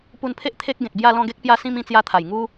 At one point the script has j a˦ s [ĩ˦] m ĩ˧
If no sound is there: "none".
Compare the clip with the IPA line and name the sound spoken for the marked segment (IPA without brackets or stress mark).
ĩ˦